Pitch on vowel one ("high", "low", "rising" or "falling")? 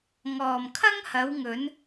low